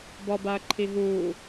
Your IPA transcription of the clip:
bɔbaɐ̯ǃʰi ɦuː

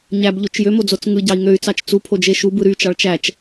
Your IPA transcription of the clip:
ɲæbʎot͡ʃ jømod͡zot͡s ŋɯɟɑi̯ ŋøy̯t͡sɑt͡ʃ t͡supʰod͡ʒe ʃubɯ ɾyt͡ʃɑɭ t͡ʃæt͡ʃ

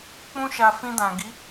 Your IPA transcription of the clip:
k͡pũ˦ʃa˧ fĩ˧dã˨ɡi˨˦

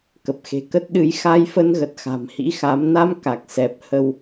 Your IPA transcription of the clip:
kə˨˩p̚xe̤˨˩ kə˦˥t̚ɗɨ˨˦j xa˧jfə˧nɣə˨˩t̚ xa̤˨˩mhḭ˧˥xa˨˦m na˧m ka˨˩k̚sɛ˨˩p̚hə˧w

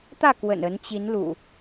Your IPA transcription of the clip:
t̪ä˥˨kwə̰˨˩n ə˨˦nt͡ɕi˨˦n lṵ˨˩

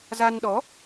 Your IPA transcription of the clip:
za˧nɗɔ˨˦

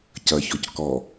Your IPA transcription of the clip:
cɐçɔc kɔ

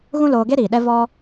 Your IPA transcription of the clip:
ɣũ˦loː˧ɡe˦ ɾiː˨ɗɛ˦ vɔ˦

